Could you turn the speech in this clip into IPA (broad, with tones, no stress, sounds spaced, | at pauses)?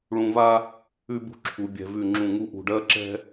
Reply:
ɭ ũ˧ v a˥ | ʉ˥ b ṳ˥ ǁʰ u˩˧ bʲ ɛ̤˧ v ʉ˧˩ ŋ͡ǁ ũ˧˩ ŋ u˥˧ ʔ ṳ˧˩ ɖ ɜ˥ ǁ ɛ̤˥